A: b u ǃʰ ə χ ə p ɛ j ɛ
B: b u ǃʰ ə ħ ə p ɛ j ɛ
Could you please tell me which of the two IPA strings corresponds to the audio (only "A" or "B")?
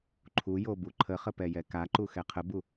A